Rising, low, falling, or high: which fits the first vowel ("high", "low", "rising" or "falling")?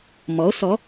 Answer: rising